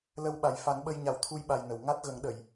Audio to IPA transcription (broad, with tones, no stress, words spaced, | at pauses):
lə˧wɓa˨˩jfa˨˩˦nɓə˧j ɲa˨˩˦wt̪ʰu˧jɓa˨˩j nə˨˩˨w ŋa˦˥t̚ɣə˨˩˦ŋ ɗə˨˩˨j